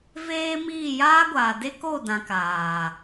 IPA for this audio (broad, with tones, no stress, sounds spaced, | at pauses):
v eː˦ m iː˦˨ j aː˦ ɡʷ aː˨ d e˦ k o˦˨ d ã˨ k aː˨